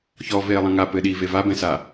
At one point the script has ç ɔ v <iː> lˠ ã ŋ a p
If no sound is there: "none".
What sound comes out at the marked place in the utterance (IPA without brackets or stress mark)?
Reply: eː